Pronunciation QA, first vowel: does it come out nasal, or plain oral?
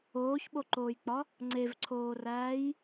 oral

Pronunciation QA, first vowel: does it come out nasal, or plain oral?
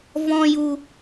nasal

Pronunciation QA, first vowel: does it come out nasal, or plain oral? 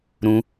nasal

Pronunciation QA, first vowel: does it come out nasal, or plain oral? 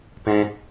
nasal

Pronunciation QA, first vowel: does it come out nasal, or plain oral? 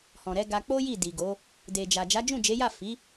nasal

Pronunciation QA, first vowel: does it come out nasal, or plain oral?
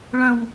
nasal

